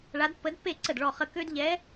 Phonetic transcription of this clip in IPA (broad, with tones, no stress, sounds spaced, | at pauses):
ɭ a˧˥ d pː ə˧˥ d pː e˥˨ ǀ ə˥˨ d ɭ ɔ˥˨ χ ə˥˨ k ø˥ d ʎ ɛ˧˥